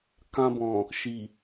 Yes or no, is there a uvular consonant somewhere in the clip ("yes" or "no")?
no